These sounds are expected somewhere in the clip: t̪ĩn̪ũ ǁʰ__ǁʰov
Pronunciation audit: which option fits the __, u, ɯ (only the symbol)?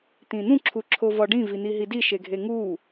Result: u